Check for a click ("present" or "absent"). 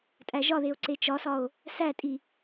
present